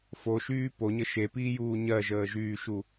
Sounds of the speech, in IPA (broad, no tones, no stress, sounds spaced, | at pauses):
f o ʃ yː p o ɲ ə ʃ e p iː j uː ɲ ɜ ʒ əː ʒ yː ʃ u